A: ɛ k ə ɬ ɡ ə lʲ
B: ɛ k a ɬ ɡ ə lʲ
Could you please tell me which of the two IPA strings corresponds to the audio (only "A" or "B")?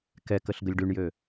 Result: A